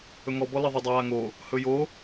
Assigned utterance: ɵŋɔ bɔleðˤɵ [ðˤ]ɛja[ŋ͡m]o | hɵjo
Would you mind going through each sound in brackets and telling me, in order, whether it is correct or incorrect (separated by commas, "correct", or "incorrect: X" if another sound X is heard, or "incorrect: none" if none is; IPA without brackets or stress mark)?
incorrect: dˤ, incorrect: ŋ